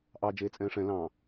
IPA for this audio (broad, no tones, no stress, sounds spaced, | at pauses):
ʔ ɑ d͡ʒ eː t͡sʼ ɛ̃ː ʂ ɛ̃ l ɑ̃